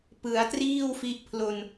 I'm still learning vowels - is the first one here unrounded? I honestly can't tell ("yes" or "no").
yes